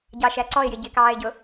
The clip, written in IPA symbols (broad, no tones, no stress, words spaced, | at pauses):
ɟɑʃæǀɔɪ̯jɪ ɟɪkɑːɪ̯ɟʊ